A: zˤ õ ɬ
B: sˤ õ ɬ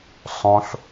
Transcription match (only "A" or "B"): B